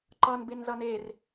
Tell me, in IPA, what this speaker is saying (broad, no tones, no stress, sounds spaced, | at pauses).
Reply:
ǃ ʌ n b e n z ʌ n e r